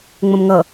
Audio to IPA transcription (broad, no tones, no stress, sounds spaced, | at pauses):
ŋ͡m ə̃ m ŋ ʌ